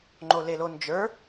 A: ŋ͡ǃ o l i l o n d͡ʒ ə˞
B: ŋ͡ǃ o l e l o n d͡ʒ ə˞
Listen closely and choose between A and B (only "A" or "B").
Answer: B